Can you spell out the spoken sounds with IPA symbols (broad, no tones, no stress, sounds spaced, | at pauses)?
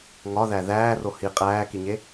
ŋ ɒ ð æ ð æː r o h i qʼ æː k i ɲ e